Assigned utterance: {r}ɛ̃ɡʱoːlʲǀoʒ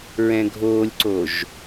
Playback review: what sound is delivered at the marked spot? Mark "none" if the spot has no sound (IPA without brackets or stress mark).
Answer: ɹ